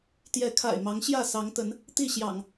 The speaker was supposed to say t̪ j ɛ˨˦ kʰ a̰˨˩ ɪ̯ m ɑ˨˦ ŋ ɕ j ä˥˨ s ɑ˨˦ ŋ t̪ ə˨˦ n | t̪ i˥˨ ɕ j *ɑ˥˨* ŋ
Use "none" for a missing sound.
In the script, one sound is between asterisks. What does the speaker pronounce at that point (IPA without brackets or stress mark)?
ɑ̰˨˩